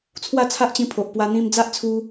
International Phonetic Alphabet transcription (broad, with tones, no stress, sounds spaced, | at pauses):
t͡sʰ w a˥˧ t͡sʰ a˦ ʔ t͡ɕ ĩ˧ pʰ o˨ ʔ p w a˧ n̪ ĩ˧ m d͡z a˦ ʔ t͡sʰ u˧